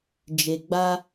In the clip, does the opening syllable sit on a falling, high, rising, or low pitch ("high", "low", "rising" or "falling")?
low